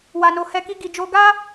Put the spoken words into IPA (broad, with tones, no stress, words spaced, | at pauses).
wa˨no˨hɛ˧ ki˧ɡi˨d͡ʒo˧ ɡa˦